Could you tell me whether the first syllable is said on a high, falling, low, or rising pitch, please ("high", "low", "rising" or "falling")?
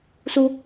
high